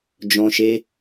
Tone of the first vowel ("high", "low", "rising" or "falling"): high